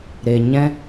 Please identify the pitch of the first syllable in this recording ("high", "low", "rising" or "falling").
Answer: low